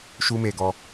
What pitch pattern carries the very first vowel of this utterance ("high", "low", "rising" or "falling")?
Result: high